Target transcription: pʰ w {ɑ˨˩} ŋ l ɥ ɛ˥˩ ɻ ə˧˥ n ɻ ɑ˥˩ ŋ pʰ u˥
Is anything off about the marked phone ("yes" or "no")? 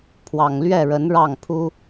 no